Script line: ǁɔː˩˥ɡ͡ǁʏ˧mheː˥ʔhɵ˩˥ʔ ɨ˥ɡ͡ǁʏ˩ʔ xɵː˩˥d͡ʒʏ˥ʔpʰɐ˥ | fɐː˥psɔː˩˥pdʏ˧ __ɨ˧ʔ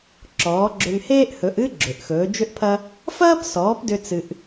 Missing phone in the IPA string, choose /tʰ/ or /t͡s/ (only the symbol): t͡s